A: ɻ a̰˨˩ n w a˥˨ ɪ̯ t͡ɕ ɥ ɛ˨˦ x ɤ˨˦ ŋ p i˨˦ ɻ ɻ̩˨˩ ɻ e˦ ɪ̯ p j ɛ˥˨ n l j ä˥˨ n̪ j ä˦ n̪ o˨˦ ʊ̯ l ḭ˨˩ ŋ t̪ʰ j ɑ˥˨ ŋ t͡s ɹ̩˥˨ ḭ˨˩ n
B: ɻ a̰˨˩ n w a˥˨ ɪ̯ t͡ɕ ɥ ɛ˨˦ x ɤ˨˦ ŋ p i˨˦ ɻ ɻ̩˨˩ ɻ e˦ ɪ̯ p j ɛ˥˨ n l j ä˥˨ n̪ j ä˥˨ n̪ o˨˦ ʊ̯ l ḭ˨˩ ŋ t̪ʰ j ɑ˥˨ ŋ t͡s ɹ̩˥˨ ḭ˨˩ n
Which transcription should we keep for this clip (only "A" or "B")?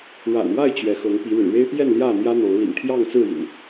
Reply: A